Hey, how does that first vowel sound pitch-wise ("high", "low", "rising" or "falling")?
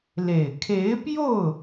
low